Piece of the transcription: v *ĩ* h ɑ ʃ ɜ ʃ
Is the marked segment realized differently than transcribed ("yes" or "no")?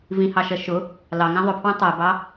no